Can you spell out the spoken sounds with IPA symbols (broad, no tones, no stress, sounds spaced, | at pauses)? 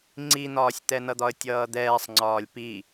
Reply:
ŋ͡ǀ i n̪ ɒː sʲ t̪ ɛ n ʌ d̪ ɒ ə̯ tʲ ʌː d̪ ɛː sˤ ŋ͡ǀ ɒː lʲ p i